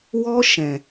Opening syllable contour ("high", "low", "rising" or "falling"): high